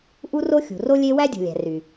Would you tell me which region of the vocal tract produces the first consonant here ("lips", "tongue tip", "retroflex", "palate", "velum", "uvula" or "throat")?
throat